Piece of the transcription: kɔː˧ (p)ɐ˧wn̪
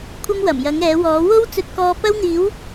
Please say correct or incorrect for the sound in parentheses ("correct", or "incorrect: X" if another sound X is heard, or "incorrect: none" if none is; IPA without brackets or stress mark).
correct